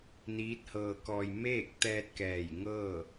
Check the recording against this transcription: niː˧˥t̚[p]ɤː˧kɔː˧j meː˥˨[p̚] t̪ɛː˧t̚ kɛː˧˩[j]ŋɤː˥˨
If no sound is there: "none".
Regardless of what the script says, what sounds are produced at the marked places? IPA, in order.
h, k̚, j

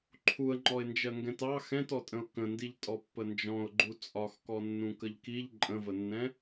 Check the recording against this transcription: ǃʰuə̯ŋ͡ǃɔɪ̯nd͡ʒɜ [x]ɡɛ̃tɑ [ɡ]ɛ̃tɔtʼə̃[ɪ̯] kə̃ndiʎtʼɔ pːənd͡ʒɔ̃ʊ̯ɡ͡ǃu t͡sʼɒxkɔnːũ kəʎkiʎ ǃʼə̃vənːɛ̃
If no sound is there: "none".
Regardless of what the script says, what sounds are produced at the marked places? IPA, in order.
ŋ, x, ʊ̯

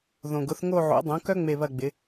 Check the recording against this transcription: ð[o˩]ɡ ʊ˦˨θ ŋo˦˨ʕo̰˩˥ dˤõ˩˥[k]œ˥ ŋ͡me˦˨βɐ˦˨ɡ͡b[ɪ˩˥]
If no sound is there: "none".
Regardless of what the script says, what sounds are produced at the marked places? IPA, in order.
õ˩, k, ɪ˩˥

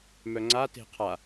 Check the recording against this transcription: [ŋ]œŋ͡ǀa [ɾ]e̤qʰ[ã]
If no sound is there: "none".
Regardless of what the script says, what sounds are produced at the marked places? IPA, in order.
m, t, a

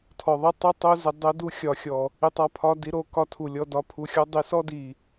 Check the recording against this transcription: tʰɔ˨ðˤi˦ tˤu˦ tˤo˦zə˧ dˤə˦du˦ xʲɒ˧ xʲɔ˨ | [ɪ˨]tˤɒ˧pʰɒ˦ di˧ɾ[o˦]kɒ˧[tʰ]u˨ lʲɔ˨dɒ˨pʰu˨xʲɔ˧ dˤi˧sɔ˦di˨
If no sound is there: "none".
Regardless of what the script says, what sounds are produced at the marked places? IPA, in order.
i˨, o˧, tʰ

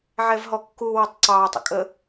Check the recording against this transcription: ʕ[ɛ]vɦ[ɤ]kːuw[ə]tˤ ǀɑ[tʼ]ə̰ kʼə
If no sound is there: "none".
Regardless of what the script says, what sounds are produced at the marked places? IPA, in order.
ɛ, ɔ, ə, tˤ

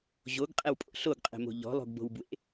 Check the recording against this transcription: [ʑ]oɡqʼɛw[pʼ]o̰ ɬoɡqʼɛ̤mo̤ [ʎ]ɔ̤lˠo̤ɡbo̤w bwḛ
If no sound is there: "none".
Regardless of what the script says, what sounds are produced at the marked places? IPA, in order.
ʑ, pʼ, ʎ

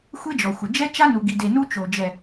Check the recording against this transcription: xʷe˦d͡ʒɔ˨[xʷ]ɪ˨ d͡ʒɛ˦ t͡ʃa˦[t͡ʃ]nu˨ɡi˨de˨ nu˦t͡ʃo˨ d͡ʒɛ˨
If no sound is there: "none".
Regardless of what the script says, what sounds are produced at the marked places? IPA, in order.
xʷ, none

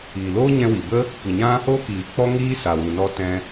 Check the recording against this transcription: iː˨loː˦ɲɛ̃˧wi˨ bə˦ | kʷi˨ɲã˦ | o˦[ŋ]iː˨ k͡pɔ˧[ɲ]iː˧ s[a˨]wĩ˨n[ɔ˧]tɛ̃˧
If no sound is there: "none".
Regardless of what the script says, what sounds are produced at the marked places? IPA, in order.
k, ŋ, a˨, ɔ˧

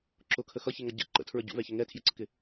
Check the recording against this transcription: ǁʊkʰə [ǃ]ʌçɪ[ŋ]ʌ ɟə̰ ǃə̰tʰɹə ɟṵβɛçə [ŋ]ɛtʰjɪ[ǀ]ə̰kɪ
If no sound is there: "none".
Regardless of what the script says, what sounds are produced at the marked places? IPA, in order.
x, ŋ, ŋ, ǀ

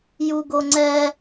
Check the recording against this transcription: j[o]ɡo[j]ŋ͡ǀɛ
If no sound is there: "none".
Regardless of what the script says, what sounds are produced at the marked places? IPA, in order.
u, none

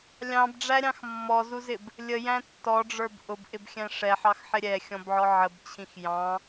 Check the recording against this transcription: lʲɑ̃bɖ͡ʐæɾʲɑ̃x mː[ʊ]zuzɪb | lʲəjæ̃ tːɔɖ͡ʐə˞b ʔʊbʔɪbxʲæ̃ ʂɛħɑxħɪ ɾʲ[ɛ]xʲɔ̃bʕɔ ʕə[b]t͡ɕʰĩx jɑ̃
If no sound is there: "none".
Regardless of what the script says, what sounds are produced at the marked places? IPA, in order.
ɔ, ɛ, b

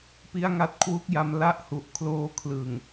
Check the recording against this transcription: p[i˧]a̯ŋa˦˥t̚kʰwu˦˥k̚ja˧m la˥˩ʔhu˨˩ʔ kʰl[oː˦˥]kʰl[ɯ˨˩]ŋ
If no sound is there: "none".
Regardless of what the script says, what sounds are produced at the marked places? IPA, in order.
i˦˥, oː˦˥, ɯ˨˩

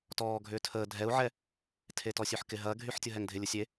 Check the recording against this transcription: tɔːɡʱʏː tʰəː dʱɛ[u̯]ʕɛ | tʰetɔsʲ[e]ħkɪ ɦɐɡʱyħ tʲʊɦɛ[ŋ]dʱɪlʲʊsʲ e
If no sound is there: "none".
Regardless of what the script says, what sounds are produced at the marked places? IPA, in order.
u̯, ø, ŋ

